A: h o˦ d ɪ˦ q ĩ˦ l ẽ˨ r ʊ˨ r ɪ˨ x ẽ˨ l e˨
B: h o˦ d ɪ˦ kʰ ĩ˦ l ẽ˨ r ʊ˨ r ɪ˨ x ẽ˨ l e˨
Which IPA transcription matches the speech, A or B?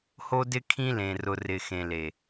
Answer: B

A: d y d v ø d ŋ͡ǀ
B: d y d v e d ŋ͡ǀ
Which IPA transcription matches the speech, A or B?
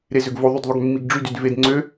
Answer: B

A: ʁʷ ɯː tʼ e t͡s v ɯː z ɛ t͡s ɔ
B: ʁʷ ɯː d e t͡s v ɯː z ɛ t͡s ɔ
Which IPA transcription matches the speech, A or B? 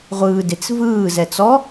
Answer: B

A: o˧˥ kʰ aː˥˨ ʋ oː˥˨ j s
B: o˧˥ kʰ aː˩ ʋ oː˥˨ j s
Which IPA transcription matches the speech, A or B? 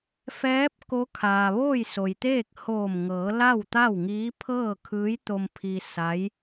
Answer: B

